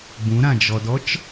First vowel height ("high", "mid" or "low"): high